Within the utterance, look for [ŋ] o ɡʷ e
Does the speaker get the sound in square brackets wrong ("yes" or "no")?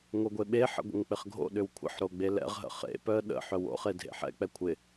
no